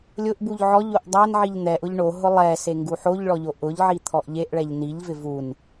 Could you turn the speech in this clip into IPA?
lʲʊʔbuʎ ʕɔʎoʔ dˤanʕiʎ n̪ɛʔʊʎ ɳoɦʊ lˠɛse ŋɡuħoʎɭɔ ʎoʔʊʎʕi t̪ʰɔʔʎeʔɭɛʎ niʎvɪ vun

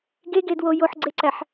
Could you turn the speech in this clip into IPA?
ɡeɡedwo joħɡ͡ǀeǀæħ

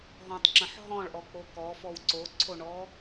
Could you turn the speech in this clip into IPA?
ɦɔ̃tˤǁə̃ħ ɦɔ̃ɭʔɔk͡po kɔfɔw ǀoǀʰoɳɔ

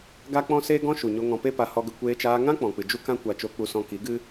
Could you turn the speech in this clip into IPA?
ɡa˦k͡pɔ̃˦ seː˦ɡɔ̃˦ʃu˨ɲo˧ ŋɔ̃˧pe˦pa˧ hɔ˧ɡə˧ kʷeː˧t͡ʃaː˧ŋã˦k͡pɔ̃˨ k͡pɨ˨ d͡ʒu˦kã˦kʷa˧ t͡ʃo˧k͡pu˧sɔ̃˧ ki˨˦ɡɨ˦

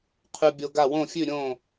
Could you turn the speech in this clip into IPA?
qʰʉ˧bʲo˧ɡa˥˩ wõ˥˩fʲʉ˥˩ ɾʲõ˥˩

